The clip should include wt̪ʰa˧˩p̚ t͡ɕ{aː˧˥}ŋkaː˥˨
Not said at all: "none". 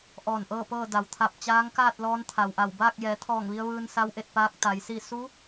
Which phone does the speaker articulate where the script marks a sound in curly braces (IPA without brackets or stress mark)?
aː˧˥